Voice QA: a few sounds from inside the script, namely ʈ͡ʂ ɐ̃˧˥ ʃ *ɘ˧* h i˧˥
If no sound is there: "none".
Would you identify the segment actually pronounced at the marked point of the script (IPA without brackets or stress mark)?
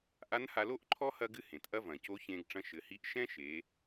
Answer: ɘ˩˧